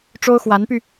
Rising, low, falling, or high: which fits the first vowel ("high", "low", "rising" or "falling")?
high